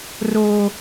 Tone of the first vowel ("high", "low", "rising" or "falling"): high